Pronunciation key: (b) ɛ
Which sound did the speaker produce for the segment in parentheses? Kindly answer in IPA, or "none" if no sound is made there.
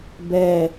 b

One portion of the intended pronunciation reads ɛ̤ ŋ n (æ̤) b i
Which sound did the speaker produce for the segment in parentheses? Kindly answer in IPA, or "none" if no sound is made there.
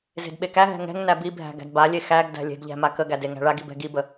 æ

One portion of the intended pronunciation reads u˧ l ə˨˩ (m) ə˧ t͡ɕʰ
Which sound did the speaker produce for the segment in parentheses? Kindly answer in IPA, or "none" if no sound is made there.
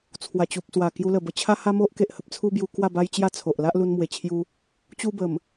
b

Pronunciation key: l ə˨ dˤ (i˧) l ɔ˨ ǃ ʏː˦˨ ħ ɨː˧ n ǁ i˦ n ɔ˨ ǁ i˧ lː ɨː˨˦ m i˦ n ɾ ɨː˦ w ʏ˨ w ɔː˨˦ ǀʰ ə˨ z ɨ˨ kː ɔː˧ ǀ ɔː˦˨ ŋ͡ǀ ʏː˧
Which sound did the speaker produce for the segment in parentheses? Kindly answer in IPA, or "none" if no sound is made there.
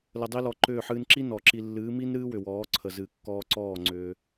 i˧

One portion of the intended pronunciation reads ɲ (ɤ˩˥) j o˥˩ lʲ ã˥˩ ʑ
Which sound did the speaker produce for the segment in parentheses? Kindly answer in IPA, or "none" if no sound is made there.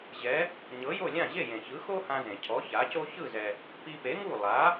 ɤ˩˥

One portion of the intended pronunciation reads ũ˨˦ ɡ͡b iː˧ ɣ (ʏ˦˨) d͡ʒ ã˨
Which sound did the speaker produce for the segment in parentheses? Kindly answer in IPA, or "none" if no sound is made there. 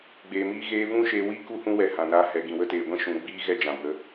ɛ˦˨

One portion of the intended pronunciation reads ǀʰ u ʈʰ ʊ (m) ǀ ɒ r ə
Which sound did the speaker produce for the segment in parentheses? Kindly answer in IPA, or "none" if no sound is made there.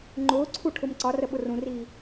m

